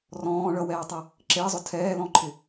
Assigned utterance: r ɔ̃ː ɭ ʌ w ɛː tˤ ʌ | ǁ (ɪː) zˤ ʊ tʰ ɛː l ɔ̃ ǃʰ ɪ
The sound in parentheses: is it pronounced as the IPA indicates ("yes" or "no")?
yes